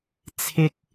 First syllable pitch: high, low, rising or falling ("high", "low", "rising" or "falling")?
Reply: high